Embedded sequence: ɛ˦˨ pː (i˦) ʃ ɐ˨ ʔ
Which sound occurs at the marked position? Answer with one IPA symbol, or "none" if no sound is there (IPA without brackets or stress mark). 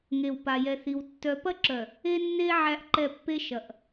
e˦